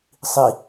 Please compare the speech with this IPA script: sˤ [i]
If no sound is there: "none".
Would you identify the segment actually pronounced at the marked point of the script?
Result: i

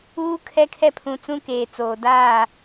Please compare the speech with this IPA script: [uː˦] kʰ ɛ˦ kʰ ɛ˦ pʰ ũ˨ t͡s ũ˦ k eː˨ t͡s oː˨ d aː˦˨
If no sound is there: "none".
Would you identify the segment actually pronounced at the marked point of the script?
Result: uː˦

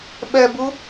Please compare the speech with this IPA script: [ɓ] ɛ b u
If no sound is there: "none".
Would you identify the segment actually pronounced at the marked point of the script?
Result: ɓ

